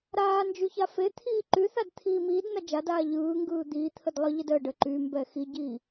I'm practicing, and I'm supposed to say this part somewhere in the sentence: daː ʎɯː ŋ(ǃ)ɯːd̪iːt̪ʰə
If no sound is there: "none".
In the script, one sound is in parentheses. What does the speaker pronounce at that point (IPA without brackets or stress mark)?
ɡ